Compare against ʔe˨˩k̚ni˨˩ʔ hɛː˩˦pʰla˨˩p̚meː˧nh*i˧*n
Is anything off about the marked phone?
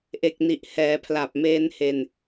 yes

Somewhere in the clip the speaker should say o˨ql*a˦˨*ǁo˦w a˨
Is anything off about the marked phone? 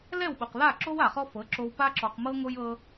no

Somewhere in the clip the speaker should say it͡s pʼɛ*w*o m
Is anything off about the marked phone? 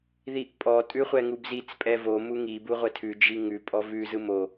yes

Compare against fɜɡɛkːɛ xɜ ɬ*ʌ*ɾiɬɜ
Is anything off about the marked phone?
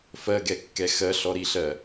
yes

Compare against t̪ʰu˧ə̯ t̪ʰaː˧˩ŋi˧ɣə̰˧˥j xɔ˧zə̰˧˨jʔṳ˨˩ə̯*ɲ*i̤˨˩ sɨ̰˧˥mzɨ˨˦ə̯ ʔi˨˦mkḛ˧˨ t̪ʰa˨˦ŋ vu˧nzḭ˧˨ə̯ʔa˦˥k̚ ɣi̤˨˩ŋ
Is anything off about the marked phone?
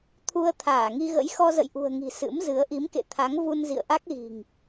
yes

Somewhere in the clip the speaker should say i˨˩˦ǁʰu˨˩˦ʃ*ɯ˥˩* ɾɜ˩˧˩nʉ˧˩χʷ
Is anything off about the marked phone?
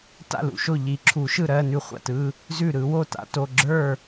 no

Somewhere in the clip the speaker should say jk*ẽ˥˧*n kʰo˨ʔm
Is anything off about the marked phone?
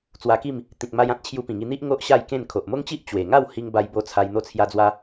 no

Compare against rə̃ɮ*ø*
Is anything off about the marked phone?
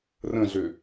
no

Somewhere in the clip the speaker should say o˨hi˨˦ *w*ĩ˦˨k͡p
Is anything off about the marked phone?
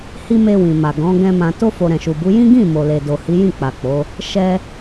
yes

